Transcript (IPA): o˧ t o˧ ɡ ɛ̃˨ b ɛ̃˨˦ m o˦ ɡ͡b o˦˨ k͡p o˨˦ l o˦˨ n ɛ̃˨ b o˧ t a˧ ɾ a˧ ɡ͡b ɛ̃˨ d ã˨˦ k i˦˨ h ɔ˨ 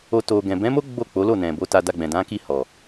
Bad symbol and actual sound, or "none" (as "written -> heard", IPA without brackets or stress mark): ɾ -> d